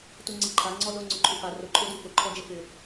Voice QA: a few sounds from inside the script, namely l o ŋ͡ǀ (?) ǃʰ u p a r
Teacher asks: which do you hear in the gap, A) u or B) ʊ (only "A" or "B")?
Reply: B